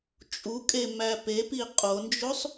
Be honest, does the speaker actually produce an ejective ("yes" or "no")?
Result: yes